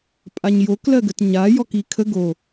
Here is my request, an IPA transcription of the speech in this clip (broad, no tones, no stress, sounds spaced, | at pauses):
pʼ a ɲ j o k l ɜ ɡ ə t ɲ a j ɔ k i kʰ ə ɡ o